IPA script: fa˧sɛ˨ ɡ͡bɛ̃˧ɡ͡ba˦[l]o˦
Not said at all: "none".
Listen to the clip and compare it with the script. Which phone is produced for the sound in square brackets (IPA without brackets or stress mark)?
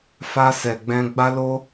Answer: l